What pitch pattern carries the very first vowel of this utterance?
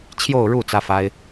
falling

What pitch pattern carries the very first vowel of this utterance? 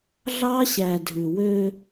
high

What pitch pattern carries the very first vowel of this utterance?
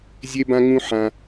high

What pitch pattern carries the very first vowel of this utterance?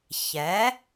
rising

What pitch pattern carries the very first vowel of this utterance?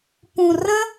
low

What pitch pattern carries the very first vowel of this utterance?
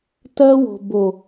high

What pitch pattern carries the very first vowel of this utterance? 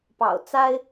low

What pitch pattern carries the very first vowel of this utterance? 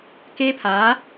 high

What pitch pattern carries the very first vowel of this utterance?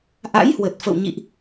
rising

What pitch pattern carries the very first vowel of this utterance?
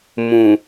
low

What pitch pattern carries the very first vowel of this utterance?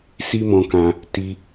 high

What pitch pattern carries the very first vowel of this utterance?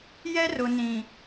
high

